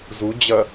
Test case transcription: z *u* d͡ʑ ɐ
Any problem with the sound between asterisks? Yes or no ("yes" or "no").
no